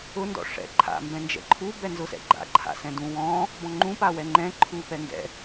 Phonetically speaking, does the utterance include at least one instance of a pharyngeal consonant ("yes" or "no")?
no